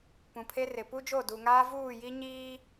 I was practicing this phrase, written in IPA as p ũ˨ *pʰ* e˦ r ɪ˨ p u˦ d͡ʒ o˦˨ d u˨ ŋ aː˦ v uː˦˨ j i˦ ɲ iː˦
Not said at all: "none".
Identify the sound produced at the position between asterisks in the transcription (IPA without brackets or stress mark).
pʰ